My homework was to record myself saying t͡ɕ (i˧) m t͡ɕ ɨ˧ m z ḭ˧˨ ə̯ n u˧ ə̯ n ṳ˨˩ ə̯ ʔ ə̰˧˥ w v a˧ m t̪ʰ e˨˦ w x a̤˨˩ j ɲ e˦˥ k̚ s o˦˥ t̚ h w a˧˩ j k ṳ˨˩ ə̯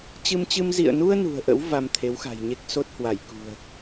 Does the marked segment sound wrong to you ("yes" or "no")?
yes